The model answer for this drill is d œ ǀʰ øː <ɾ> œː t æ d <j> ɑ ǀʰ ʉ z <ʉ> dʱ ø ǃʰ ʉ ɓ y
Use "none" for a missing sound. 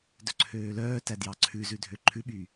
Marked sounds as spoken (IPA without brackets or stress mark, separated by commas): l, j, ʉ